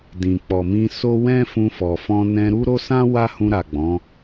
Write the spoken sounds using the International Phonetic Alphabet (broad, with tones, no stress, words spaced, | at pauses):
dĩ˨k͡pɔ˨mĩ˧ so˦wɛ̃˦ fũ˧fɔ˨ fɔ̃˧nɛ̃˧ ɾu˦ɾo˦sã˦ wa˦hũ˧ɾa˨ ɡ͡bɔ̃˨˦